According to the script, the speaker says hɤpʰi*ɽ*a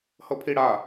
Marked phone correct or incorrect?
correct